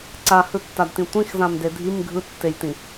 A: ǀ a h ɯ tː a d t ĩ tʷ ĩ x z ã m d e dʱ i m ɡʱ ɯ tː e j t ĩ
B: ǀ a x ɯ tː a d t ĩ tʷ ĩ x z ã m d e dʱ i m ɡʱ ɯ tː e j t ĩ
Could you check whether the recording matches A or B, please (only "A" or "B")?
A